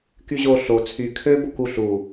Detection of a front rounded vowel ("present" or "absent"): present